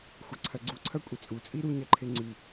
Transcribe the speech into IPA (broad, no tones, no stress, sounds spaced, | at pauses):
xʷ ɐ ǀʰ ɐ ɡ͡ǀ u ǀʰ ɐ kʷʼ e t͡sʼ u t͡sʼ i ɾ u ɲ ɐ ǃʰ e ŋ͡ǀ ʉ